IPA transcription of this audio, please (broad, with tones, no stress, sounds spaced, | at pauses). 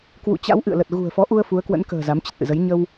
k w ṵ˧˨ t͡ɕ a̰˧˥ w ʔ ɨ̰˧˨ ə̯ l ə˨˩ t̚ ɣ ṳ˨˩ ə̯ f ɔ˨˦ ʔ u˧ ə̯ f u˨˦ ə̯ k w ə̰˧˥ n k ə̤ː˨˩ z a˨˦ m t͡ɕ ə˨˩ t̚ ʔ ɨ̰˧˨ z ə˨˦ j ɲ ə˧ w